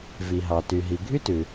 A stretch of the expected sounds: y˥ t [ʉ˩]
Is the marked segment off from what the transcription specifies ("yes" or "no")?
no